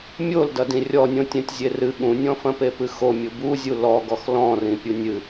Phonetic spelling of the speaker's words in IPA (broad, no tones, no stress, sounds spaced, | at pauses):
mʲ o l d ɐ d ĩ rʲ ɔ nʲ õ tʲ ɛ̃ tʲ zʲ e r ɨ ɠ ũ nʲ ɔ̃ f ɐ̃ p e p ɨ x o mʲ u b u zʲ u l ɔ ɡ ɔ x l ɔ̃ r ĩ pʲ u nʲ ɨ